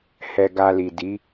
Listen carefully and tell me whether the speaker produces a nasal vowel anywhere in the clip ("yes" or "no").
no